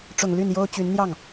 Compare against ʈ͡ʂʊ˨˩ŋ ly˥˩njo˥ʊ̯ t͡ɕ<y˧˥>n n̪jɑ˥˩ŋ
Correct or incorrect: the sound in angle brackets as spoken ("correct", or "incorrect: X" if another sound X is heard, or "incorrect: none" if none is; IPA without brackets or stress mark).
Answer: correct